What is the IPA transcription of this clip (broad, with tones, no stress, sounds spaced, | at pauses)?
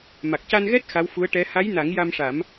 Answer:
m a˨˩ k̚ c a˧ n ɣ ɛ˦˥ t̚ x a˧˥ w f u˧˥ ə̯ ʈ ɛ˧˥ h a˧˥ j n a˨˩˦ ŋ j a˧ m ʂ a˨˩˦ m